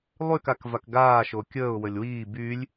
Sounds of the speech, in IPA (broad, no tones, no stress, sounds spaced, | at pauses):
lˠ y k a k v a k ɡ aː ʃ o kʲ əː ʊ̯ w ə lʲ w iː b y lʲ